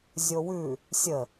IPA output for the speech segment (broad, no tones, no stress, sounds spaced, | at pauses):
zʲ o w ʉ | sʲ ə